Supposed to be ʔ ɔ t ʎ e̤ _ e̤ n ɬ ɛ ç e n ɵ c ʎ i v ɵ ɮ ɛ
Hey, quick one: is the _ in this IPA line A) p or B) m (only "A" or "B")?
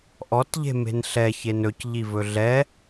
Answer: B